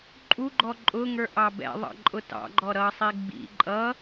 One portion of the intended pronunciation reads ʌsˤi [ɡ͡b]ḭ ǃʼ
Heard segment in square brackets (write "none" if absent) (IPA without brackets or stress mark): ɡ͡b